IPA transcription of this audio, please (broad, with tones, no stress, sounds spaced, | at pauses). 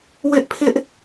w ɪ˦ ʔ pʰ ɪ˦ ʔ